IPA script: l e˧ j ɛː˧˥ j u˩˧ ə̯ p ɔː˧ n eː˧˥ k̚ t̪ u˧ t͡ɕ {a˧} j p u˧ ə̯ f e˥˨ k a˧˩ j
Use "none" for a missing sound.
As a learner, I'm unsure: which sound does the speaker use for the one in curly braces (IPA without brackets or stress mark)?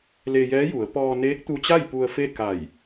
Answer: a˥˨